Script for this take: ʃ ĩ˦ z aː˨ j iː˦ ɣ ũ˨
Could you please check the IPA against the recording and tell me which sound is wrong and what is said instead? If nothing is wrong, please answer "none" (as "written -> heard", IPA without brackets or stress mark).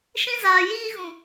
none